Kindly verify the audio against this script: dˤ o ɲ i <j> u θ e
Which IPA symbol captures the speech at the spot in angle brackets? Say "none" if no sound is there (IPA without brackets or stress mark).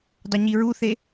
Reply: ɹ